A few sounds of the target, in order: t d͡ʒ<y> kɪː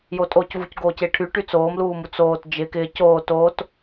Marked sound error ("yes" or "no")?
yes